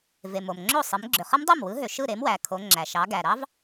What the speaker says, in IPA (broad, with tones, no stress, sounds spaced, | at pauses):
v e˩ m o˩ m ŋ͡ǁ o˥˩ sˤ ɯ˩˧ m ɡ͡ǁ ø˩ χ ɯ˦˥ m dˤ o˥˩ m w ɯ˨˥ ɦ ø˩ ʃ ɯ˥˩ ɾ e˨˥ m w æ˩˧ kʰ o˩˧ ŋ͡ǁ æ˩ ʃ ɑ˩˧ ɡ æ˩ ɾ ɑ˦˥ v